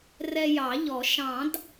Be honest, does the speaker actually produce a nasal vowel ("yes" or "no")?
yes